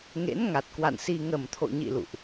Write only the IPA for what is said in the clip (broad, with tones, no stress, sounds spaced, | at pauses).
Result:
ŋ ḛ˧˥ n ŋ a˨˩ t̚ k w a̰˧˨ n s i˧ ŋ ə˨˩ m t̪ʰ o̰˧˨ ɲ ḭ˧˨ l ṵ˧˨ ʔ